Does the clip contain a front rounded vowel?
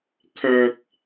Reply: yes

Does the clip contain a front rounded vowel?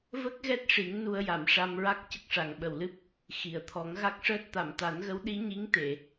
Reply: no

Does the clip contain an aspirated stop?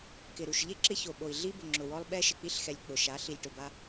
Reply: no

